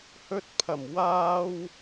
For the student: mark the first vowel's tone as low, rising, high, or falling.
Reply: high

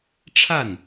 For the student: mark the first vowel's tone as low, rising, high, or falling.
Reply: falling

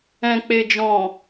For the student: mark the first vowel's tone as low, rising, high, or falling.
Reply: low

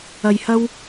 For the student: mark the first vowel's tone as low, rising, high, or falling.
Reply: low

